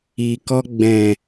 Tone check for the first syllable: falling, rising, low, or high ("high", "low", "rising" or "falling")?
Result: low